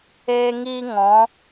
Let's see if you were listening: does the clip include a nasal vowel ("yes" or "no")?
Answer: yes